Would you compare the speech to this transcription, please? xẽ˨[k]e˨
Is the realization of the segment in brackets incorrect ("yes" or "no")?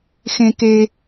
no